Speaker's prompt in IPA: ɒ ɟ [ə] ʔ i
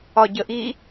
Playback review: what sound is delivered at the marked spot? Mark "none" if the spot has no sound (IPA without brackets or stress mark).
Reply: ə